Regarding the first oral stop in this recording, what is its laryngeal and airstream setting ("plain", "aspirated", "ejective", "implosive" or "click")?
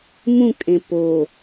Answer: ejective